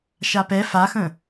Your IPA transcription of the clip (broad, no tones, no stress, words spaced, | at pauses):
ʃapɛ faxə̃